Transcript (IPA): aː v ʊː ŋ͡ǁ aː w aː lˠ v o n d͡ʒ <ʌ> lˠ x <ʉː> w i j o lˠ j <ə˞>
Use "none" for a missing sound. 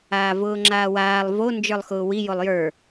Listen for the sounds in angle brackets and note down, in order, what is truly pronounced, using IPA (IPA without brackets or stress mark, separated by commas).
ə˞, ʊː, ə˞